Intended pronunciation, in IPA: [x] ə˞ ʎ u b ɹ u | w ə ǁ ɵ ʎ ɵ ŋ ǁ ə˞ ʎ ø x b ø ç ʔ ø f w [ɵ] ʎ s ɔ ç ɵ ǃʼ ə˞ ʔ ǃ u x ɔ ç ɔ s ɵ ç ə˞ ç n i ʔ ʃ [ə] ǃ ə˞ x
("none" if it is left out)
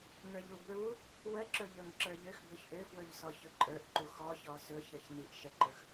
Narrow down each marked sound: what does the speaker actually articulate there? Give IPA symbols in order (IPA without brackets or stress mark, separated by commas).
ŋ, ɵ, ə